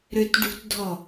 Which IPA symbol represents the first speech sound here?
ɾ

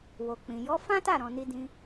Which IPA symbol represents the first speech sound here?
w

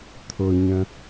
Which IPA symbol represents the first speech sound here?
t̪ʰ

